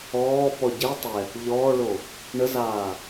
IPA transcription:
ɔː p ɔ ɟ e tˤ ɛ | ʎ ɔː ɭ o | ɳ ə z aː

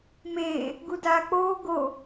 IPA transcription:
m eː | ɡ u d aː k͡p oː ɡ o

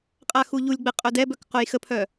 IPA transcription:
qʼ a x u ʎ u lʲ ɡ͡b ɛ qʼ œ d ɛ b œ k q o j x ə pʰ œ

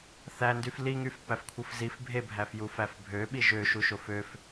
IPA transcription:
θ æ n d y f l i ŋ y f p æ f kʷʰ ɯ f z i f bʱ e bʱ æ f j u f æ f bʱ ø ɓ i ʒ ø ʃ u ʃ o f ø f

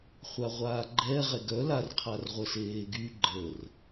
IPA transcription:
χʷ a ʁʷ aː ɡ͡ǃ ɛ ʁ ɛ ɡ œ l a r qʰ a r ʁʷ ə s eː ɡ y ɡ͡ǃ ə r

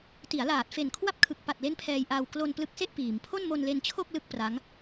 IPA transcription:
t i˩˦ a̯ l aː˨˩ t̚ f e˨˩ n kʰ w a˥˩ p̚ kʰ ɯ˨˩ k̚ p a˨˩ t̚ l e˦˥ n pʰ ɛː˧ j ʔ aː˧ w k l o˧ n p l ɯ˦˥ k̚ s e˥˩ ʔ p iː˩˦ m pʰ o˥˩ n m o˧ n l e˧ n t͡ɕʰ o˥˩ k̚ l ɯ˥˩ k̚ p r a˦˥ ŋ

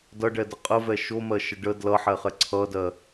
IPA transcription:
d ʌ ɖ ɛ d ə qʼ ə v ɛ ʃ o m ɜ ʃ ə ɖ ə d l ʌ ħ ɛ χ ɛ ǀʰ ʌ d ɜ

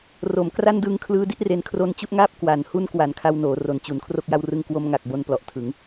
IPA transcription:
r o˩˦ m k r a˥˩ n d ɯː˦˥ ŋ kʰ l ɯː˦˥ d i˦˥ ʔ r e˧ n kʰ r o˧ n t͡ɕ u˥˩ ʔ ŋ aː˥˩ p̚ k w a˩˦ n h u˧ n k w a˩˦ n kʰ a˧ w n oː˩˦ r o˩˦ n t͡ɕ u˩˦ n kʰ r o˥˩ k̚ j a˦˥ w r ɯ˦˥ ŋ k w o˧ m ŋ a˨˩ k̚ b o˧ n p l ɔ˨˩ ʔ tʰ ɯ˩˦ ŋ

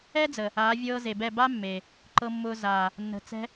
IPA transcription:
ɛ˦ d͡z ə˨ | aː˨˦ vʲ ɤː˧ z e˨ b ɛ˦˨ b a˦ mː eː˨ | ǃ ɤ˧ mː ʊː˧ z aː˨ | nː ə̤˨ t͡s ɛ̤˧

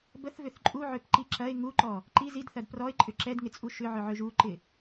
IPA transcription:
b ə θ v ʏ θ ǃʼ u ʕ ø p ǃ i ǁ ɐ ɪ̯ ŋ u ǃ ɔ | ǃ i z i d θ ɐ d p r ɔ ɪ̯ ǃʼ ʏ ǁ ɛ d ŋ ɪ t͡sʼ u ʃ ʏ ʕ ʏ ʕ ø ʒ u ǃ ɪ

